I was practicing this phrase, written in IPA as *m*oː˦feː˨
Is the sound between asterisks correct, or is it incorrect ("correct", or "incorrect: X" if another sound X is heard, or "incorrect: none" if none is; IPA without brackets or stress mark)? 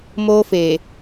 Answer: correct